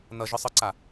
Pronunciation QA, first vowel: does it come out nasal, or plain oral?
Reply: oral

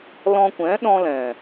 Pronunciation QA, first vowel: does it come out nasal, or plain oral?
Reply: nasal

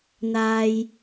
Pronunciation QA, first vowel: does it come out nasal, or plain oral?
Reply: oral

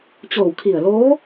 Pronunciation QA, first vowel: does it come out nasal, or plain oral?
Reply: oral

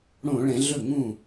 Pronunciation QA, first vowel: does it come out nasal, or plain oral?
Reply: nasal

